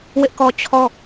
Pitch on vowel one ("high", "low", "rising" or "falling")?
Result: high